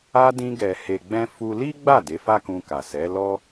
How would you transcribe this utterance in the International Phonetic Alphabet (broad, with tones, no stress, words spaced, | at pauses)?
a˧dĩ˧ɡɛ˨ he˨ɡ͡bɛ̃˧ fu˧ li˦ɡ͡ba˦˨ de˨˦fa˦kũ˧ka˨ sɛ˨˦ lɔ˦